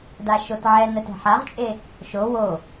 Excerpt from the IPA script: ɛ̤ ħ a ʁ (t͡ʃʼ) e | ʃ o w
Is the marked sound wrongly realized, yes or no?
no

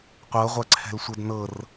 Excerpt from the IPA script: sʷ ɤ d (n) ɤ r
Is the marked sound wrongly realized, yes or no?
no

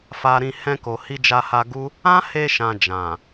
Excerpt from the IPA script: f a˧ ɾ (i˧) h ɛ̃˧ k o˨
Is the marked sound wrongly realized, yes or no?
yes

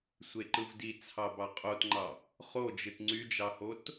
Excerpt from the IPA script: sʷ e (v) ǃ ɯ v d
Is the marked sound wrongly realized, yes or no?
yes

